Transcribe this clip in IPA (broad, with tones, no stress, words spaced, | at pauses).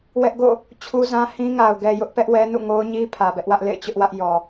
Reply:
wɛ˦ʔɡo̰˦˨ | t͡ɕʰu˦zã˦ hĩ˦ŋa˨ʊ̯ ɡɛ˨jʊ˦ʔpɛ˦ʔwɛ˦ nṵ˦˨ŋo˦ʊ̯ɲi˦ pʰä˨bɛ˦ʔwä˦ʔ lḛ˦˨ɪ̯t͡ɕʊ˦ʔwä˦ʔ jɔ˨